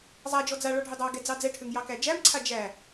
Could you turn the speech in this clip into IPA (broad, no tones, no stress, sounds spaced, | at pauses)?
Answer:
zˤ a d͡ʒ ɔ d͡z a ɭ ɔ ɖʱ ø dˤ ɑ ɡ ɛ d͡z ɑ d͡z ɛ ʈʰ ø ŋ j ɑ k æ d͡ʒ æ m ǀʰ a d͡ʒ æ